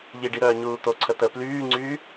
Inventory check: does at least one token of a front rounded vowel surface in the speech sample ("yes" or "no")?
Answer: yes